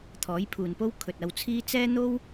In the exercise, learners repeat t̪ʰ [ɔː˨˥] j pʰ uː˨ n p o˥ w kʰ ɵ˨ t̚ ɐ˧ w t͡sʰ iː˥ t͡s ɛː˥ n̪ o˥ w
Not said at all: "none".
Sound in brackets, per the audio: ɔː˨˥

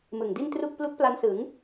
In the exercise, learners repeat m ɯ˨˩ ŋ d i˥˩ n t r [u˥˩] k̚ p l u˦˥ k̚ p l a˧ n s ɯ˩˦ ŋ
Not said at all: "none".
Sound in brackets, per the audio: u˥˩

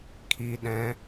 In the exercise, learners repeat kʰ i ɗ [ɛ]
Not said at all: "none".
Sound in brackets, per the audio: ɛ̃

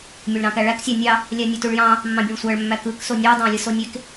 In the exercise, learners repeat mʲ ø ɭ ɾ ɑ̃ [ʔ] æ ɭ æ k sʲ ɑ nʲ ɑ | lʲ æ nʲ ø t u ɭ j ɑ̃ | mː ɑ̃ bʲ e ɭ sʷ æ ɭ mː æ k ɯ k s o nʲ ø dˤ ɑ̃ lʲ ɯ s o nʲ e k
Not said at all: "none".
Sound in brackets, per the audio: k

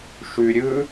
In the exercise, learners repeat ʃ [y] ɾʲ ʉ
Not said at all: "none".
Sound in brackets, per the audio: y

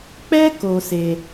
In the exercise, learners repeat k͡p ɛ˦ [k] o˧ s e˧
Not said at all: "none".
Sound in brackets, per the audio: k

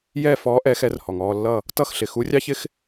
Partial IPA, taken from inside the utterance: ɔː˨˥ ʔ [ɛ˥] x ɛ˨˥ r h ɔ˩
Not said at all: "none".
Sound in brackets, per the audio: ɛ˨˥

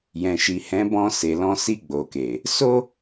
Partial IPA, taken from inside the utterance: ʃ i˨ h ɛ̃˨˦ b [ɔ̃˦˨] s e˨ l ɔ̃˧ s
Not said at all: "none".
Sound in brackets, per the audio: ɔ̃˧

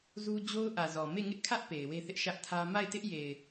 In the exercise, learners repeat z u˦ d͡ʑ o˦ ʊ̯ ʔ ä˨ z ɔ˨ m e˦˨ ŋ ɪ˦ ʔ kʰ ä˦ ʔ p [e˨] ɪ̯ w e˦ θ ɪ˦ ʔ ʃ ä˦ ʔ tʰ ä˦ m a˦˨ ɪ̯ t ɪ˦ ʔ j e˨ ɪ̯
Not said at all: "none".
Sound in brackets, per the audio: e˨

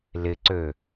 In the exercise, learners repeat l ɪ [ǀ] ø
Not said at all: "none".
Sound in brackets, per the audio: ǀ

